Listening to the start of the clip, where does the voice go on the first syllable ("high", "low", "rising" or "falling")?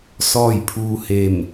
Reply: falling